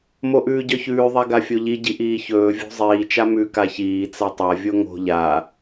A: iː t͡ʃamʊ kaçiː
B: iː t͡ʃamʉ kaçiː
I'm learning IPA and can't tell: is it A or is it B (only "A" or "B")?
B